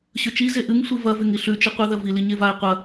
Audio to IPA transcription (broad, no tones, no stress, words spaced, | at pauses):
ɕɵt͡ʃi zeʔɨŋ sʷivɐ veŋiɬʉ t͡ʃɨqʷɨ ðɐvi liɲevae̯ qʷɐ